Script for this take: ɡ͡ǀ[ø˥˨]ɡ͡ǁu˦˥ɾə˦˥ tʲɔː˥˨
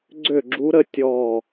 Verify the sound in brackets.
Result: correct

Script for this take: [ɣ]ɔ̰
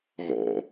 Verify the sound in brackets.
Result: correct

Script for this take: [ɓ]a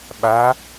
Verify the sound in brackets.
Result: correct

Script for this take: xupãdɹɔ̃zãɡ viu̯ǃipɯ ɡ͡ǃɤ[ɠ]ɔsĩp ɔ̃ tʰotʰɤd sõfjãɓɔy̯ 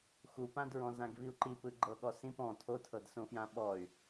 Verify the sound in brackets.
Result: correct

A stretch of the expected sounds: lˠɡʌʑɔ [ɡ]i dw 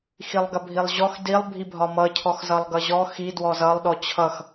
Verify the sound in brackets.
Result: incorrect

